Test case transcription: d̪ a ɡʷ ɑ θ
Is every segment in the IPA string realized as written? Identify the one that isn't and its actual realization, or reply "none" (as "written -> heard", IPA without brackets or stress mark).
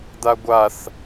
ɑ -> a